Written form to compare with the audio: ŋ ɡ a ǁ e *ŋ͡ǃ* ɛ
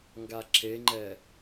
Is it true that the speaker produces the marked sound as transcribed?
yes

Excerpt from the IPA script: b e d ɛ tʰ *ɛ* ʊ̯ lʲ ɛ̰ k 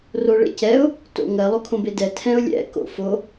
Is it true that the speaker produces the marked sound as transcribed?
no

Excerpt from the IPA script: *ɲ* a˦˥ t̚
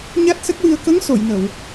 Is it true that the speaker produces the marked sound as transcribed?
yes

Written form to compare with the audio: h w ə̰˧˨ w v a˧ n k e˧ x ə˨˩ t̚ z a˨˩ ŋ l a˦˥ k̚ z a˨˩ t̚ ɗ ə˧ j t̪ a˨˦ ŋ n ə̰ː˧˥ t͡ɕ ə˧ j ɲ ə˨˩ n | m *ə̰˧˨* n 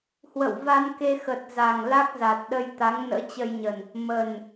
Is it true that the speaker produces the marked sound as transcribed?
no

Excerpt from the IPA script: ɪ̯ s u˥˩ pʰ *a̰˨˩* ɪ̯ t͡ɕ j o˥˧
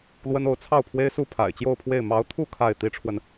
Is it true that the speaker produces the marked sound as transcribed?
yes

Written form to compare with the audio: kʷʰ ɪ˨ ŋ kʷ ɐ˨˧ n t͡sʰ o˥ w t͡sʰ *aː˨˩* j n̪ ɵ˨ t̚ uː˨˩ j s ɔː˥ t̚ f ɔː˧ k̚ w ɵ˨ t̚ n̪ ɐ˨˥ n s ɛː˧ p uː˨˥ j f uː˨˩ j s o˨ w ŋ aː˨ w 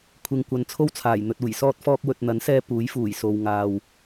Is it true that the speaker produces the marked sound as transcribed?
yes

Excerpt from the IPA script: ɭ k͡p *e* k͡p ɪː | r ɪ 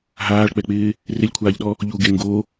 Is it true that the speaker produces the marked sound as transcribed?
no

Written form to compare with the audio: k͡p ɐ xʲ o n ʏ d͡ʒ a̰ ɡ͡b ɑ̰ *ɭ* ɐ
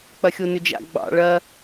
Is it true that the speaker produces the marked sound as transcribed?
yes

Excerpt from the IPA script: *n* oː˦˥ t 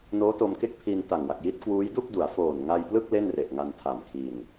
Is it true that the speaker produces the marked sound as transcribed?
yes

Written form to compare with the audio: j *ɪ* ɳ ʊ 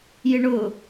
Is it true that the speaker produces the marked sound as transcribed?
yes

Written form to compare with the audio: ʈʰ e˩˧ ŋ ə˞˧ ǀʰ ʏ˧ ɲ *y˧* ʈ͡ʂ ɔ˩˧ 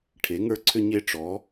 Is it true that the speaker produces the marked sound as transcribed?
no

